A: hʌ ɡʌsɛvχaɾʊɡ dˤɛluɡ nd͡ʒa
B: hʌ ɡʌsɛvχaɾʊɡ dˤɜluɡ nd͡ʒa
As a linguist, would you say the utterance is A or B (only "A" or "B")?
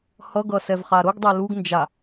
A